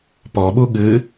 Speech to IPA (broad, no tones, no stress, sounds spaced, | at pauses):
p ɔ ɓ u ɠ ɨ